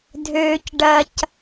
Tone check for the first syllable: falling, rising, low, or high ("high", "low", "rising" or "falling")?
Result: low